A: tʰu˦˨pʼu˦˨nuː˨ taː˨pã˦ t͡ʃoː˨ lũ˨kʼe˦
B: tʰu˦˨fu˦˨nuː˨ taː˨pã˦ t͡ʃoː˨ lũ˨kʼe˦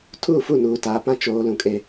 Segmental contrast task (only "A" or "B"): B